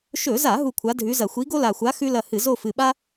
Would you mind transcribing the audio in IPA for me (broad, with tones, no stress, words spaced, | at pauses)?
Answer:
ʃɵ˧˩˧za˧˩˧ ɦu˦˨kʷʰa˨˥dʱʉ˨˥zɐ˧˩˧ xʷi˨˥ɡo˥la˨˩xʷa˨˥ xʉ˥lɐ˦˨hɨ˧˩˧ zo˦˨fɨ˨˩ɓa˥